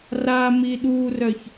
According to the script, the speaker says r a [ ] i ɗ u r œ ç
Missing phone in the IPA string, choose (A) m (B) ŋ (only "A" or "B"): A